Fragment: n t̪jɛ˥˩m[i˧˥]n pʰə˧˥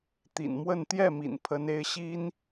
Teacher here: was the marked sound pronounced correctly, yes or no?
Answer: no